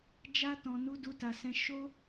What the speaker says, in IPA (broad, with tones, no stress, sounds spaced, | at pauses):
d͡ʒ a˧ t ɔ̃˨ n u˧ d u˧ t a˨ s ɛ̃˧ ʃ o˦